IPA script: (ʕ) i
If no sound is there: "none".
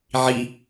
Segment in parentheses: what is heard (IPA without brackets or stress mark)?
ʕ